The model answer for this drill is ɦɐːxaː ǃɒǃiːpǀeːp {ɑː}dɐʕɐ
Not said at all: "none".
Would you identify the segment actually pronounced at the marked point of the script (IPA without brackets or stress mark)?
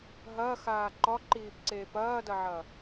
ɐː